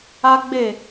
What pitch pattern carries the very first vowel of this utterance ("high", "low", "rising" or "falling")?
high